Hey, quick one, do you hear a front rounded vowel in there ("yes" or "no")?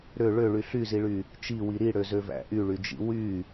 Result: yes